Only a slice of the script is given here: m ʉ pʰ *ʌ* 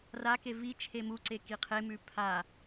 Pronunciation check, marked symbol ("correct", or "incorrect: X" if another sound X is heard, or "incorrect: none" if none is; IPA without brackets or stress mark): incorrect: a